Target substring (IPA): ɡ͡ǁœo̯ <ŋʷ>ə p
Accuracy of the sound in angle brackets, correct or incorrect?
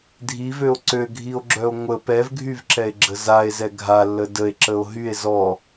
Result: correct